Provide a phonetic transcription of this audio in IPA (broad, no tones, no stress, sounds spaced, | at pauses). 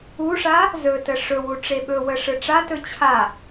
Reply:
u ʂ a | z ɵ t ə ʂ ɵ w u ʈ͡ʂ e ɓ ɵ w ə ʂ ɯ ʈ͡ʂ a t ɵ t͡ɕʰ a